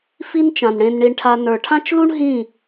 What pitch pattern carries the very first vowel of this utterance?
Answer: high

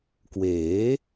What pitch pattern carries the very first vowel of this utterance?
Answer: rising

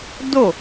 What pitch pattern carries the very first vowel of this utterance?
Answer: falling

